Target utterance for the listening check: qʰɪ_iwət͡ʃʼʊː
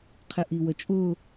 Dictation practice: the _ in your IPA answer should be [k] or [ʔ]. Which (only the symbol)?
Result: ʔ